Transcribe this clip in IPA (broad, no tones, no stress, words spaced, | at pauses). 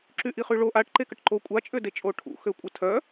ǁyʔiχyɭo ʔaʈ ǃekəʈǃo kʷʼa t͡ʃʼødet͡ʃʼoʈʰṵ xøkʷʼətʰœ